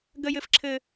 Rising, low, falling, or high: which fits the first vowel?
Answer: high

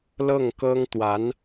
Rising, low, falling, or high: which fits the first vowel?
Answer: falling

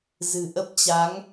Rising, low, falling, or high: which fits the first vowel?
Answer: low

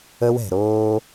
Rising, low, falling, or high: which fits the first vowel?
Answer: high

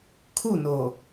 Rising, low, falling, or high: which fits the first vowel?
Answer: falling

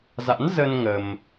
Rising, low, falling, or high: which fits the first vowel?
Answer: rising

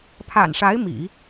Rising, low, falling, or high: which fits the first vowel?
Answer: low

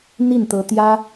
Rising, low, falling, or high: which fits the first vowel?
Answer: falling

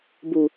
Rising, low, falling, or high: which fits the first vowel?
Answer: low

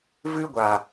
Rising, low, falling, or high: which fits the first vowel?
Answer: high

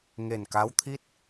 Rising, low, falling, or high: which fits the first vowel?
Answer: low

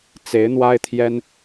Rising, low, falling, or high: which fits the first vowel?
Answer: rising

